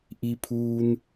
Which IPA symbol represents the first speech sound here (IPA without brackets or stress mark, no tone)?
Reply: ʔ